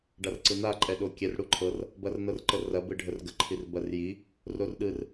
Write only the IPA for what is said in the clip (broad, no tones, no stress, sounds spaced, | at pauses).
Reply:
ɖ a r ǀ ɯ n a ǃʼ ɛ ɗ o kʲ ɛ r ɽ u ǃʰ ɤ r | b ɐ r n ɤ r ǃ ə r ɐ b ɯ ɖʱ ə r ɡ ə ǃʰ i r b ɐ r j i | r o r ɗ ɯ r